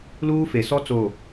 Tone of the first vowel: high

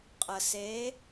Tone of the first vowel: low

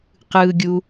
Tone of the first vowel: low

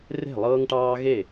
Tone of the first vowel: falling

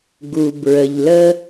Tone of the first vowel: low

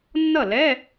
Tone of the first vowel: falling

